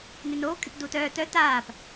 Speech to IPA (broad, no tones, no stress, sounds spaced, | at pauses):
n y n oː kʼ y p d uː t œː t œ t aː p